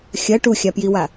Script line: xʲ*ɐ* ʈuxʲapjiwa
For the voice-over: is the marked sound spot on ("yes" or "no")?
yes